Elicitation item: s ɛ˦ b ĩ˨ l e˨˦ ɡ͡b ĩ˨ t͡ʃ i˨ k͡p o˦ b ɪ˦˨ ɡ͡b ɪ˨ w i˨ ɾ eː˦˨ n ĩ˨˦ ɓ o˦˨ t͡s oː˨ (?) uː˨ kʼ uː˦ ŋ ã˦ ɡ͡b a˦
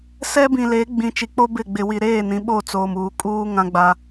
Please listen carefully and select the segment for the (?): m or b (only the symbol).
m